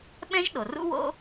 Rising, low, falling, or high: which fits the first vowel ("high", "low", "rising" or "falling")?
high